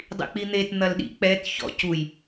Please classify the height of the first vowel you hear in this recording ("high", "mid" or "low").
high